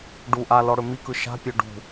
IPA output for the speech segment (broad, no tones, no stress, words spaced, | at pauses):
ɖu ʔalɔɽɵ mikɯ ʃa̤pʲø ɖṳ